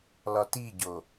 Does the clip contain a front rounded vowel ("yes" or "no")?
no